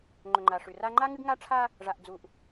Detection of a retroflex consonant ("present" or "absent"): present